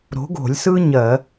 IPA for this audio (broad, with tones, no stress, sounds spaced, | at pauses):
ɾ o̤˨˥ ɡ o̤˧˩˧ lʲ s ɯ˥ ɲ ɜ˧˩˧